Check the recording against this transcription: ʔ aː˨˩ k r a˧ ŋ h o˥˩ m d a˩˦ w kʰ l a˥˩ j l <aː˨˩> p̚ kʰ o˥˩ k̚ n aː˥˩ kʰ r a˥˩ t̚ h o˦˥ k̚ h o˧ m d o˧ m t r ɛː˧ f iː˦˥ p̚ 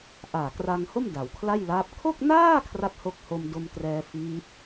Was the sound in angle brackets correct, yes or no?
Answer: no